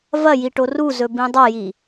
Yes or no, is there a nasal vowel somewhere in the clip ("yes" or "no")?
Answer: yes